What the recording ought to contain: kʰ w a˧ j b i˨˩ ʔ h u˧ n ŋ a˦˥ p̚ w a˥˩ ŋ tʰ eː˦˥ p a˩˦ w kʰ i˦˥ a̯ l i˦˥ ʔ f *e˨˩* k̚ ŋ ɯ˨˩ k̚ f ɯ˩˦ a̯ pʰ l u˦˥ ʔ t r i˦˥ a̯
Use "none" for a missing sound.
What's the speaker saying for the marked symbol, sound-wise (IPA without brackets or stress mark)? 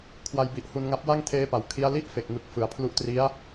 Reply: e˨˩